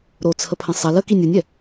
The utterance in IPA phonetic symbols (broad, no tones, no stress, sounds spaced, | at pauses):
ɾ o t͡sʰ ə pʰ ə̃ sˤ ɐ l ə k i nʲ o nʲ ɛ